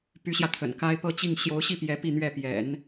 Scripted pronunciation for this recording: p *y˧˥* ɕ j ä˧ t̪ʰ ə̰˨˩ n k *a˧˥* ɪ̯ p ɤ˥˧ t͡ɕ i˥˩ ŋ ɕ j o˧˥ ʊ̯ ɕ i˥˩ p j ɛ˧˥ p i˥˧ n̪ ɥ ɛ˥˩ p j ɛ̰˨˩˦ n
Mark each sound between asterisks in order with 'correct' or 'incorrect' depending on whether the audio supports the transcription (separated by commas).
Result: correct, incorrect